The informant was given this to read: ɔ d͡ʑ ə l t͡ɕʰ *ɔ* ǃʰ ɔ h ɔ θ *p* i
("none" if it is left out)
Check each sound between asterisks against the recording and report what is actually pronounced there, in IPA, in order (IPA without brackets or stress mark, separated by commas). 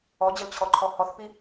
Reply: ɔ, p